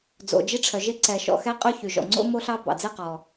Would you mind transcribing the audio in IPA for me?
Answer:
d͡z o̰˩ d͡ʒ i˥ ʈ͡ʂʰ œ˩ ʒ e˥ ǀ ɛ˩ ʃ ɔ̰˩ x ɛ˥ qʼ ʉ˥ ç y˩ ʒ ɔ̰˩ ŋ͡ǀ o̰˥ m o˥ ɬ ɑ˥ b ɑ̰˩ d͡z e˥ q ɔ˩

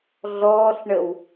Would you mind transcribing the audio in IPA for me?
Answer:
ɮ ɔː ɬ ɳ ə w

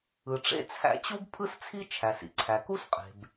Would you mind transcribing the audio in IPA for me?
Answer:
ɯ˩ ʈ͡ʂ ḛ˥ t͡sʰ æ̰˥ t͡ɕ u˥ b pʰ ɯ˥ s t͡sʰ i˥ t͡ʃʰ æ˩ s ḭ˩ ǀʰ æ˩ k u˥ s qʼ e̤˩ b

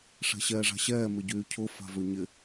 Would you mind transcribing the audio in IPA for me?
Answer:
ʂ ɛ̤ ɕ ɛː ʐ a̤ ɕ ɛː m ɪ ɟ yː cʰ ʊ f a̤ v ø ɲ ɪ

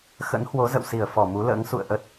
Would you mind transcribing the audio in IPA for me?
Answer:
x ə̰˧˥ n h w o˨˦ z ə̰˧˨ w s i˧˩ ə̯ f ɔ˧˩ m u˨˦ l ə̰ː˧˥ ŋ s ṵ˧˨ ə̯ ʔ ə˦˥ t̚

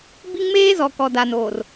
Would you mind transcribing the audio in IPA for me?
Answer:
b i˦ ŋ m eː˦ z ɔ˨ k ɔ˨ d a˨ n oː˨ r

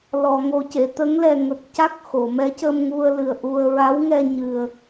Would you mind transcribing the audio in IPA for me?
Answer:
l ɔ˨˩˨ ŋ o˨˩ c e˨˩˨ t̪ ə˧˥ ŋ l ɛ˨˩ ŋ ə˨˩ k̚ c a˦˥ k̚ x o˨˩˨ m ɛ˧˥ c ə˧ m ŋ u˧ ə̯ l ɨ˨˩ ə̯ ʔ u˧ ə̯ ɹ a˧˥ w ŋ ɛ˧ ɲ ɨ˨˩ ə̯

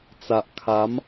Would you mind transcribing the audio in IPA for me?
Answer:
t͡s a˨ ʔ kʰ a˨˦ m

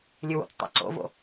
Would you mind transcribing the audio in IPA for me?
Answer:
lʲ ɨ w o̰ t͡s tˤ a̰ ǀ o̰ v o̰

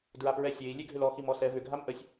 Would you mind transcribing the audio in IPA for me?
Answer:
d ɹ a p ɹ ɛ sʲ e i̯ lʲ e ɡʱ ʏ l ɔ x i m ɔ s ɛ v ʏ ɡʱ a m ʔ ə sʲ

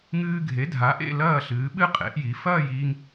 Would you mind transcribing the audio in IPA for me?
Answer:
ŋ ɨː˧ ɡʱ e˩˥ dʱ a˩˥ ʔ ḛ˥˨ l ɐː˥˨ ɬ ɨː˩˥ ɓ ɨ˥˨ qʼ ḛ˩˥ ʔ j i˩˥ f ɐː˥˨ j iː˧ ŋ

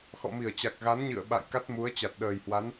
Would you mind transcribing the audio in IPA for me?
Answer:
x ɔ̰˧˨ m i˧˩ ə̯ t͡ɕ a˨˩ k̚ ɣ a˨˦ n ɲ ɨ̰˧˨ ə̯ ɓ a̰˧˨ j k a˦˥ t̚ m u˨˦ ə̯ t͡ɕ a˨˩ t̚ ɗ əː˨˩ j h w a˨˦ n

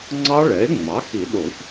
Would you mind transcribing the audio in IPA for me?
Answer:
ŋ͡ǀ ɑ˦˥ ɭ ɛ˩˥ e̯ ŋ͡m ɑ˩˥ x i˨˩˦ ɗ o˨˩˦ ç

